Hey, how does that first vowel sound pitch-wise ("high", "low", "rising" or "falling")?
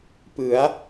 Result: rising